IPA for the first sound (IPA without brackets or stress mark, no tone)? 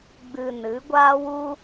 ɡ͡b